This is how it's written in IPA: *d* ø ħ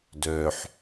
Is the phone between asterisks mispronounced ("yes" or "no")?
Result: no